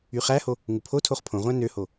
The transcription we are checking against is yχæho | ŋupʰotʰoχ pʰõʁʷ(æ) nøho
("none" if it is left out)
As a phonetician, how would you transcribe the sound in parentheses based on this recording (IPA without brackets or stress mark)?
æ̃